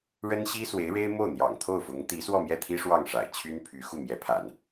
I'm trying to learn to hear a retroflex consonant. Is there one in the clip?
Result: yes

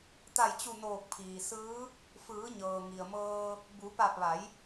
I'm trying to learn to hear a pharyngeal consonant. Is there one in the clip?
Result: no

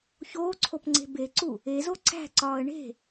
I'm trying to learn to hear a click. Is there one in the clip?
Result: yes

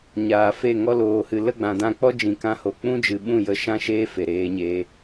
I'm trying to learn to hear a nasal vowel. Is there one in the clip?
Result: yes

